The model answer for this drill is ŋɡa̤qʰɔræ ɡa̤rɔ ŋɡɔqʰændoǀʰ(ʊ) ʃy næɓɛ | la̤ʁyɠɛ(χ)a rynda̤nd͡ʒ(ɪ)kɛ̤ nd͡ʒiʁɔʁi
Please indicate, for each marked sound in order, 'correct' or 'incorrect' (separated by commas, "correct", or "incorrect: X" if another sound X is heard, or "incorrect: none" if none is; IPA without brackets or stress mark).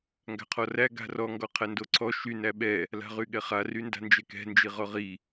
incorrect: ɔ, correct, incorrect: ɛ